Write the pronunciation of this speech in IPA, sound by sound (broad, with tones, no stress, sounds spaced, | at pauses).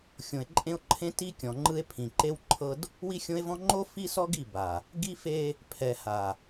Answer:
xʲ õ˨ e̯ ǃʼ ẽ˦ o̯ ǃʰ ẽ˦ t i˦ kʲ ɔ̃˨ ŋ͡ǃ ɯ˦ e̯ pʰ ĩ˨ ǃ e˦ w ǃʰ ɤ˦ d | w i˦ xʲ õ˦ e̯ v ɔ̃˦ ŋ͡ǃ o˦ f i˦ s ɔ˦ ɡ i˦˨ b a˨ | ɡ i˦ f e˦ | pʰ ɛ˨ h a˨